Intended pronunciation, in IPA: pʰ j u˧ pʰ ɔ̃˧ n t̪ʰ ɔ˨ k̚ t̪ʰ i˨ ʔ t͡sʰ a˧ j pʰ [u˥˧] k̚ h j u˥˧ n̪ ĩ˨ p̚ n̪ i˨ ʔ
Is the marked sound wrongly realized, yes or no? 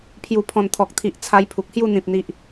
yes